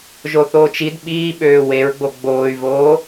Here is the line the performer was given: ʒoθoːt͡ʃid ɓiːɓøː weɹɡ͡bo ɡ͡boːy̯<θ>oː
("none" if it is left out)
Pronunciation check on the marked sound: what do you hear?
v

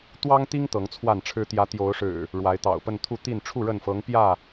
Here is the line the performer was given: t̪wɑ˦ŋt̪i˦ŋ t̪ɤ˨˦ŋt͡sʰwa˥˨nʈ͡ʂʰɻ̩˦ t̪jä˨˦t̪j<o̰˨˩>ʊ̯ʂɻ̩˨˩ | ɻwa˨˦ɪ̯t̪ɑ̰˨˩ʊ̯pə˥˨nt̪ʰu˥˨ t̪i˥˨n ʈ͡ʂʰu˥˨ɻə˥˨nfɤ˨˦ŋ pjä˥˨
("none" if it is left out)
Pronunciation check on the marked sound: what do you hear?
o˨˦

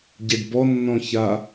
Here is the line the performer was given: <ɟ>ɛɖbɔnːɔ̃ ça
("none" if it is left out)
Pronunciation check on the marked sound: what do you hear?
ɟ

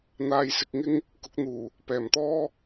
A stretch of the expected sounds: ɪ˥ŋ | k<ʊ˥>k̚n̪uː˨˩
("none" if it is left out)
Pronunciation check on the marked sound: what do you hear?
ʊ˨˥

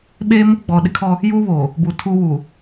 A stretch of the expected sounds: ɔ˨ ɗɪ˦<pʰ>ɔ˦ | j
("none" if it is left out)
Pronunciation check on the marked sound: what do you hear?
kʰ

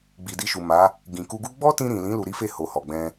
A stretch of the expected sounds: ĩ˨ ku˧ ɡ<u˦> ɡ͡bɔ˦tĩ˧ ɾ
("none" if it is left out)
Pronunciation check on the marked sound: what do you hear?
u˦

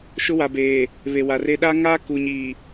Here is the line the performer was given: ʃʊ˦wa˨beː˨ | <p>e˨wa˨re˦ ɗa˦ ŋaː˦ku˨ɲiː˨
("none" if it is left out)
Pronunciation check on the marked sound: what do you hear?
β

